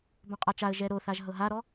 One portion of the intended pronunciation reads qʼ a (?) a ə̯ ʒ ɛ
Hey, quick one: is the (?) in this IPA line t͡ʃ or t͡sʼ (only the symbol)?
t͡ʃ